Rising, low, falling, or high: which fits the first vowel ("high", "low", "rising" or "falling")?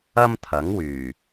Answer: high